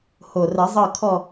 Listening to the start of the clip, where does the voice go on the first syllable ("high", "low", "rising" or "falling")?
low